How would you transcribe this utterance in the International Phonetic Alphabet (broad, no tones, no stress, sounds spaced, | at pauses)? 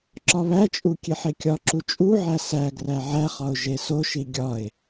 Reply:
ǁ ɒ β æ t͡ʃʼ u kʲ e ħ e kʲ ɒ ǁ u t͡ʃʼ u ʕ æ s æ ɡ r æ ʕ æ χ ɒ ʊ̯ ʒ e s o ʃ i ɡʲ ɒ ɪ̯